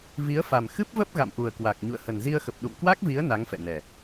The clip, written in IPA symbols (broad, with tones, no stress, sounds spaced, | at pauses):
v i˨˦ ə̯ f a˨˩ m x ɨ˦˥ p̚ v ə˦˥ p̚ ɣ a̰˧˨ m ʔ u˨˩ ə̯ k w a˨˩ k̚ ɲ ṵ˧˨ ə̯ h ə˨˩ n z i˧ ə̯ x ə˨˩ p̚ ɗ ṵ˧˨ m k w a˦˥ k̚ v i˨˦ ə̯ n a˨˦ ŋ f ɛ̰˧˨ n ɛ˨˩